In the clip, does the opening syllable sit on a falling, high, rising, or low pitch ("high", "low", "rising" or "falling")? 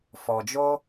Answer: low